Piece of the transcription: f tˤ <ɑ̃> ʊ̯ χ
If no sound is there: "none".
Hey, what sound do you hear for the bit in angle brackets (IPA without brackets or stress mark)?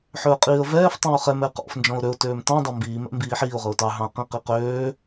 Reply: ɑ̃